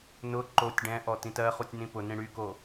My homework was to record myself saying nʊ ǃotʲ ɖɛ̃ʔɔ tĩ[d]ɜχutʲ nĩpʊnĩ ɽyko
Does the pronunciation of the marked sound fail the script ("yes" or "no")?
yes